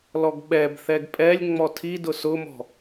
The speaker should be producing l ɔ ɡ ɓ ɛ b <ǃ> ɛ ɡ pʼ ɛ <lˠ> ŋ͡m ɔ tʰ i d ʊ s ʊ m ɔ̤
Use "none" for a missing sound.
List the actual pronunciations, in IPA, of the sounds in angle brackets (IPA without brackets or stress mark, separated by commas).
θ, lʲ